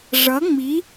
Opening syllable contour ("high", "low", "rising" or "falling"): rising